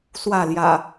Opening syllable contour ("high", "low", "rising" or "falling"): falling